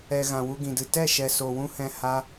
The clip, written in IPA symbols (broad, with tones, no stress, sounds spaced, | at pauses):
ɛ˨ ɣ ã˨ w u˧ ɡ ĩ˨ d ɨ˨ t ɛ˦˨ ʃ ɛ˨ s o˨ w ũ˦ h ɛ̃˧ h a˧